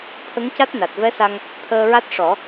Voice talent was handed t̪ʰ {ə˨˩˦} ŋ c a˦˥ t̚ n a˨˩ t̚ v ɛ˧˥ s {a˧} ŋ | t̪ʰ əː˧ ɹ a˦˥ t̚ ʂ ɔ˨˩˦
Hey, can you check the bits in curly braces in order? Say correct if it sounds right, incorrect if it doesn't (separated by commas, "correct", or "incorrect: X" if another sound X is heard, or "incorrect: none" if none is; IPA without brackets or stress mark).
incorrect: ə˧˥, correct